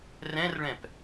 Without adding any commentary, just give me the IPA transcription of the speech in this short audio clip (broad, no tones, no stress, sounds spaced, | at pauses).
r ɛ̃ r ɭ ɛ̃ p